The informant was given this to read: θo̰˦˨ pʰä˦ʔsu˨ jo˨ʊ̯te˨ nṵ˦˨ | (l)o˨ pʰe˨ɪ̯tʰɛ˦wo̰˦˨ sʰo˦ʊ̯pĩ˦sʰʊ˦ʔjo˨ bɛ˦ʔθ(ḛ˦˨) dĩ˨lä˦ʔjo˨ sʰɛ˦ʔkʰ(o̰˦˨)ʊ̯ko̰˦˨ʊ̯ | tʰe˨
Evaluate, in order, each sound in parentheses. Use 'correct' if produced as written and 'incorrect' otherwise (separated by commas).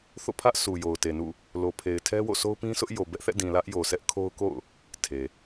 correct, incorrect, incorrect